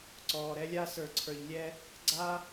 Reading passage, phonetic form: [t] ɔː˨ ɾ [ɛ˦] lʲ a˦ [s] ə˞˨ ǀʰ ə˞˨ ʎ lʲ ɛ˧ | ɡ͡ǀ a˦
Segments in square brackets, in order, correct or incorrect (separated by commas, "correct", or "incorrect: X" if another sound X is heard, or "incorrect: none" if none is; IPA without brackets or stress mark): incorrect: ǀ, correct, correct